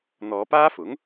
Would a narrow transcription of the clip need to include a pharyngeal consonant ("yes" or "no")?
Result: no